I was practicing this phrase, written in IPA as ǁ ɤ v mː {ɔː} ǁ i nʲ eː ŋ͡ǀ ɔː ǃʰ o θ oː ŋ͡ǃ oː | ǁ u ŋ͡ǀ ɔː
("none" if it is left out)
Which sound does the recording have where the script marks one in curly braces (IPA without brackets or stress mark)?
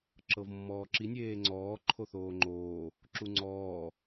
ɔː